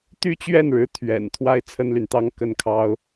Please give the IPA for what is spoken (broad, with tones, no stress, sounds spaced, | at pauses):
t̪ y˥˧ t͡ɕ ɥ ɛ˥˩ n ɻ ɻ̩˧˥ t̪ʰ ɥ ɛ̰˨˩ n t̪ʰ w a˥ ɪ̯ t͡sʰ ə˥ n l y˨ n t̪ ɑ˥ ŋ k ə˥˩ n kʰ ɑ˥ ʊ̯